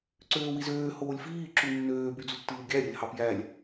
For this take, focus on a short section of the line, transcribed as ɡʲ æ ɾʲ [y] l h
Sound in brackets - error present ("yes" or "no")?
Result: yes